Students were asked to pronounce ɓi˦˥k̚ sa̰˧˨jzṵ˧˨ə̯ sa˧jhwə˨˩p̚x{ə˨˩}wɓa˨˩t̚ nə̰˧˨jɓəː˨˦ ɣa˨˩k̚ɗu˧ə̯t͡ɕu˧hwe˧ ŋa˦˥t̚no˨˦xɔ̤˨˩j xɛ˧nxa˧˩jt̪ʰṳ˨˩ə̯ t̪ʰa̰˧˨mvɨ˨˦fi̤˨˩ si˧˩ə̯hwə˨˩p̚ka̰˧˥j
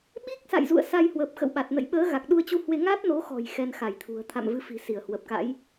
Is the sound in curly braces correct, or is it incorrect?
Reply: incorrect